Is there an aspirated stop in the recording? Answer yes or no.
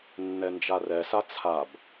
yes